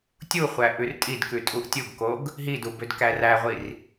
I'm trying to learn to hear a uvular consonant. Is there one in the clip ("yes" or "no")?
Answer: yes